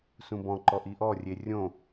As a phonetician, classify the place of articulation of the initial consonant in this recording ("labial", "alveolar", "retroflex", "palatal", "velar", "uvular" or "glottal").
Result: alveolar